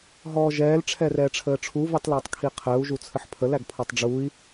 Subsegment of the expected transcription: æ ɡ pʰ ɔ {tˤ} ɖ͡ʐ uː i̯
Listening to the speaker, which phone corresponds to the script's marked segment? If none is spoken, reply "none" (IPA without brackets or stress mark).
tˤ